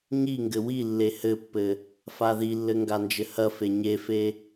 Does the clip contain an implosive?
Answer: no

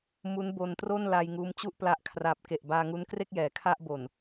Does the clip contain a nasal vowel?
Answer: no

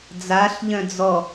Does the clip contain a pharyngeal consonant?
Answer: no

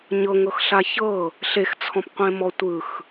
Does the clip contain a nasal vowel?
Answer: yes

